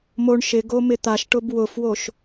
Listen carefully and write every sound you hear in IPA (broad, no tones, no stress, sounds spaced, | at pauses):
m o ɳ ʃ ɪ ɡ o m ɪ t̪ a ʃ ʈ ʊ b w ʊ f w o ʃ